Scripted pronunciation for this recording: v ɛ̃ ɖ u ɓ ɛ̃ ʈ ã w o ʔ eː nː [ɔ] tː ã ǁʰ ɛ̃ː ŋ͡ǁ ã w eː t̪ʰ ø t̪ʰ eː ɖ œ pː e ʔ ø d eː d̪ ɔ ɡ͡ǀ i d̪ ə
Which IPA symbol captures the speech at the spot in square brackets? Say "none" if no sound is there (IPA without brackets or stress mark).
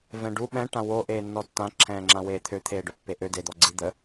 ɔ